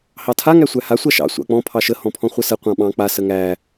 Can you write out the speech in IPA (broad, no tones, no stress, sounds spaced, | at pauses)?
h ɑ tʰ a ŋ æ sʷ æ h a sʷ a ʃ ɑ̰ sʷ ɑ̰ k͡p ɔ̃ pʰ ɑ ʃ ə h ɔ̃ pʰ ɔ̃ χʷ ə s ə qʷ ɑ̃ ɓ ɑ̃ k͡p a s ə ŋ æ